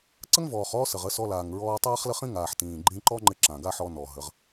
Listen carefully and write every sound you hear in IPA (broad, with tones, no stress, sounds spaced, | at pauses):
ǀ ə˦ ŋ v ɔː˨ χ ɔː˦ s ə˨ ʁ ə˨˦ s ɔ˧ l aː˨ ŋ ɹ ɔː˧ tˤ aː˦ χ l ə˦ χ ĩ˦ ŋ aː˨ ħ t ĩː˨ ɡ͡ǃ ĩ˧ ǃ ɔ˦ ŋ͡ǃ ɪ˧ ǁ ã˨ ɡ a˦ ħ ɔ˧ n ɔ˨ ɦ ə˨˦ ʁ